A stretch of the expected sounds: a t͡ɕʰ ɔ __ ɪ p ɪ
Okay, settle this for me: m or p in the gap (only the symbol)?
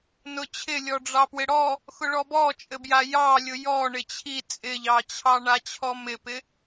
m